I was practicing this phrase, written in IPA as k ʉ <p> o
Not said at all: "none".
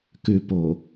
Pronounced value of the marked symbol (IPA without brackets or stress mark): p